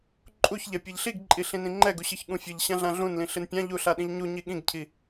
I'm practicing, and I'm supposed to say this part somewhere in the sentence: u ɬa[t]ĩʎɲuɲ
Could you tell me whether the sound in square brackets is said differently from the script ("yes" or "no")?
yes